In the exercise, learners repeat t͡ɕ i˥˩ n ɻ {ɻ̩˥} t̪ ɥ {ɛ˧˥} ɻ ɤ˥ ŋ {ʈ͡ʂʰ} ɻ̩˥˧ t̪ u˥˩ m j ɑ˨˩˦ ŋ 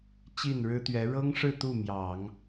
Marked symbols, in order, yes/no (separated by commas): yes, yes, no